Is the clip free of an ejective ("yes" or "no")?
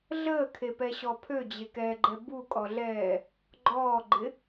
no